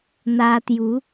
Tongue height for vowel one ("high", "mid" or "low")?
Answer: low